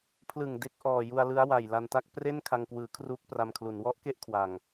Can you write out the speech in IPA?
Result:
pʰ l ɯ˨˩ ŋ d e˥˩ k̚ ʔ ɔː˨˩ j u˧ a̯ l ɯ˦˥ a̯ w a˨˩ j l a˧ n t a˥˩ k̚ p r e˥˩ n kʰ a˧ ŋ k w ɯː˩˦ kʰ r uː˦˥ k̚ p r a˧ m kʰ l u˩˦ n w ɔ˦˥ ʔ k e˥˩ ʔ kʰ w a˨˩ ŋ

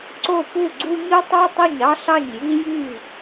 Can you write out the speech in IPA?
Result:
ǀ o˥˩ p u˥˩ ɡ͡ǀ u˦ ɲ ɯ˦ tˤ ɑ˦ tˤ o˥˩ ɲ ɑ˦ ɬ ɑ˥˩ ɲ j i˦ j y˥˩

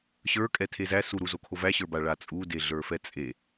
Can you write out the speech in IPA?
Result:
ɕ ə˞ kʼ ɛ tʰ e z æ s u ɾ u z o kʰ o v æ ɕ ə˞ b a ɭ a t͡sʼ u d e ɮ ə˞ f ɛ t͡sʼ e

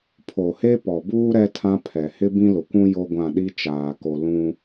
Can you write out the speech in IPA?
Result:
pʰ o˨ h e˦ p ɔ˨ b uː˦ ɾ ɛ˦ tʰ ã˦ pʰ ɛ˨ h ɪ˦ b ĩ˦ l ʊ˨ kʷ ũ˦ j o˦ ɡʷ ã˦˨ ɗ i˦ t͡ʃ aː˨ k o˨ l ũ˦

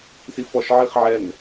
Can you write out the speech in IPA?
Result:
s i f ɔ ʃ ʕ i χ ʕ ɛ n

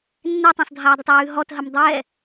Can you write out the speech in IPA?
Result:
nː ɛ tˤ ɛ̃ sˤ dʱ aː dˤ ɪ tˤ w ʉː ɦ ɔ t ɦ ə m dˤ ɛ

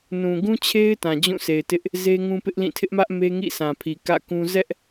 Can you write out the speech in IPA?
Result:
n ũ˨ ɡ ũ˦ t͡ɕʰ e˦ ɪ̯ t ã˨ d͡ʑ ũ˦˨ s e˨ ɪ̯ t ɪ˦ ʔ | z e˦ ŋ ũ˦ p ɪ˦ ʔ l ĩ˦˨ tʰ ɪ˦ ʔ m ä˦ ʔ m e˦ ŋ ḭ˦˨ sʰ ã˨ pʰ i˨ k ä̰˦˨ k ũ˦ z ɛ˦ ʔ

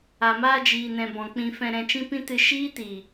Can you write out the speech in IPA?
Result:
a˨ m aː˧ d͡ʒ iː˨ n ɛ̃˨ b ɔ̃˨ k͡p ĩ˧ f ɛ̃˧ ɾ ɛ̃˧ t͡ʃ ĩ˦ p ĩ˦ t ɨ˧ ʃ iː˦ t i˨

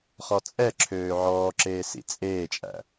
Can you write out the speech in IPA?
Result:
χ ɔ t͡sʼ ɛ ǁʰ øː ʕ ɔː ǁ eː s ḭ t͡sʼ eː t͡ʃʼ æ̰

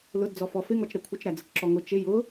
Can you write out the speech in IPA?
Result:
l ʊ d d͡z ɔ f ɔ f ɪ ŋ ɔ t͡ʃ ɾ ɛ kʷʰ ɪ t͡ʃ ɾ æ d͡z ə t͡ʃ ǁ ɔ ŋ ʊ t͡ʃ ɪ j ʊ

